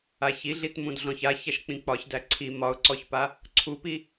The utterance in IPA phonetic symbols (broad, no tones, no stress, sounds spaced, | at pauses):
a ç i ɮ i t m ũ d ɮ ɔ̃ ç a ç æ ʃ k͡p ĩ k͡p ɒ ç d æ ǀʰ i m ɒ ʊ̯ ǀ ɔ ç p a | ǀʰ u p i